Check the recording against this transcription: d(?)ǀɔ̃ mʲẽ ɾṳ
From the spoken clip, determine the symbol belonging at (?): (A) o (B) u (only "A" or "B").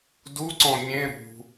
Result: B